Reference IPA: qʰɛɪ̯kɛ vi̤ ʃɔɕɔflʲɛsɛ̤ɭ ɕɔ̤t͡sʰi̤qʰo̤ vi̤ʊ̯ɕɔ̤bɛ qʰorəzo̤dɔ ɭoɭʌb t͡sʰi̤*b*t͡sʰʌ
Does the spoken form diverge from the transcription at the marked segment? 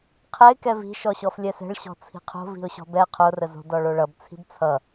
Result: no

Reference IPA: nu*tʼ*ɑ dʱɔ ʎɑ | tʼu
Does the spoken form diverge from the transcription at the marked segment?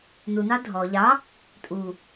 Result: yes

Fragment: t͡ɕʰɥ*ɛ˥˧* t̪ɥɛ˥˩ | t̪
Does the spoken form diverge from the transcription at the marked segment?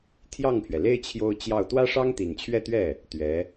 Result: no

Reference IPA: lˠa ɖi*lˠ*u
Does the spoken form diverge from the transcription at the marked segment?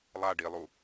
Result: no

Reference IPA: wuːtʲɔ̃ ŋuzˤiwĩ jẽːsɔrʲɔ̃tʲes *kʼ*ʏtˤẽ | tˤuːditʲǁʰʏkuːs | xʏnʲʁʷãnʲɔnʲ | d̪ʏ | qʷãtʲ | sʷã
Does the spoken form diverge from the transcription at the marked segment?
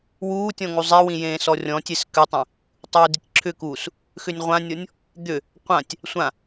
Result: yes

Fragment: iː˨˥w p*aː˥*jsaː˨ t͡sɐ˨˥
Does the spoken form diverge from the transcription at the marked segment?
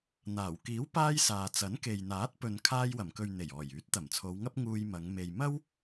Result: no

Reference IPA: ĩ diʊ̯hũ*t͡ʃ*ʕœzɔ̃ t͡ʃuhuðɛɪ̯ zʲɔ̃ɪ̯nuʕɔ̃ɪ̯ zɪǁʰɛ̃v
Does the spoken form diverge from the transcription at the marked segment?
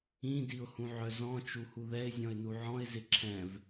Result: yes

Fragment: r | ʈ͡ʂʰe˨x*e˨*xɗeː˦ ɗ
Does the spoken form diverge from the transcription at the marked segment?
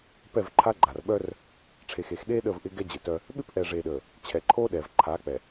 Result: no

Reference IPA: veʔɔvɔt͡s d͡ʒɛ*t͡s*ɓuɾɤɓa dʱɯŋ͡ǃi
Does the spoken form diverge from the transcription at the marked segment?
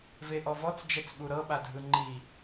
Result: no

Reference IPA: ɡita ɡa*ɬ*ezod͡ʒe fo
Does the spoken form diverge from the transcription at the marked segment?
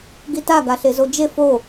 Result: no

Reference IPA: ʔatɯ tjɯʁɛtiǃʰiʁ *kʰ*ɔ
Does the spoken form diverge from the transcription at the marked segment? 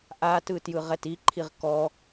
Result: yes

